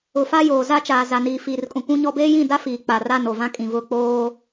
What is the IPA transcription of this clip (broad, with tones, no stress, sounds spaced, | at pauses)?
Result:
ʊ˨ f a˦ j oː˨ z a˦ t͡ʃ aː˨ z a˨ n iː˨ f iː˨ r kʼ ũ˨ kʷ ũ˦ ɲ ɔ˦ b eː˦ j ĩ˦˨ d a˦ f iː˨ k͡p a˨ r a˦˨ n o˨ v ã˦ kʼ ĩ˨ v ʊ˦˨ k͡p oː˦